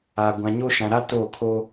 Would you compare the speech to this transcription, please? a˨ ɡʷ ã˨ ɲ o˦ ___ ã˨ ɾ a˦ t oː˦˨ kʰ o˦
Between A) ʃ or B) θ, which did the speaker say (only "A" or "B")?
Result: A